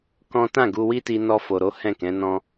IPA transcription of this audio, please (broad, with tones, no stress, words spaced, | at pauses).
kɔ̃˦ tã˦˨ɡu˧wi˦ti˧ nɔ˧fo˨ɾo˨˦ hɛ̃˦˨kɛ̃˨˦nɔ̃˦